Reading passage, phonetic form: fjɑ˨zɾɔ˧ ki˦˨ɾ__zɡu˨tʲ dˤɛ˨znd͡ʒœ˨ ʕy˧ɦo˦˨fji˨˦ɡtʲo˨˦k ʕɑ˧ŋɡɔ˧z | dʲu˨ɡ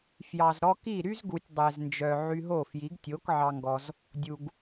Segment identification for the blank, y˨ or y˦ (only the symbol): y˦